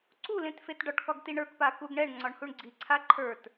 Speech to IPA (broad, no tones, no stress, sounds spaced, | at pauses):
ǀ u l ẽ t f e t ɖ ɒ ʈ k ɒ ɡ t i ɳ ə˞ k p a k u ɡ ɳ ɛ ɳ ŋ͡ǀ ɒ ɳ h u ɳ ɡ͡ǀ i ǀʰ a ǃʰ ə˞ t